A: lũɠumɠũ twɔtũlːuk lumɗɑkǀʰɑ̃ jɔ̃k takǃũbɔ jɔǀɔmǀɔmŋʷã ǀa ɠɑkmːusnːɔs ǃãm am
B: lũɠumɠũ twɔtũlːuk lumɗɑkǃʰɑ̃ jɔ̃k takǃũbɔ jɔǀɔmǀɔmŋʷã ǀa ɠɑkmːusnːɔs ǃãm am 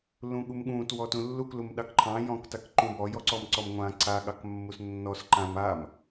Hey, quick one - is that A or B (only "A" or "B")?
B